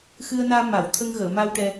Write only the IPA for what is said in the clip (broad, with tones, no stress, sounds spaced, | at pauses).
x ɨ˧ ə̯ n aː˧ m a˨˩˨ w t̪ʰ ə˧ ŋ ɣ əː˨˩˨ m a˧ w ʈ ɛ˧